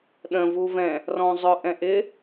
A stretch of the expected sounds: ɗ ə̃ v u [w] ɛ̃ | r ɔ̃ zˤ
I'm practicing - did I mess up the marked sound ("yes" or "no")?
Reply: yes